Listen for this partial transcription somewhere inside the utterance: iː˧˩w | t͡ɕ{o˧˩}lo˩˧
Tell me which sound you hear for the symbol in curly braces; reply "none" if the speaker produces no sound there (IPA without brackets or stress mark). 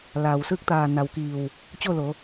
o˥˨